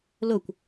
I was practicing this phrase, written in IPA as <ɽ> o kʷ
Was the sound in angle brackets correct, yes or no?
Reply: no